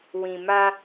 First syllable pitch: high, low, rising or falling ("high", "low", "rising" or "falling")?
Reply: low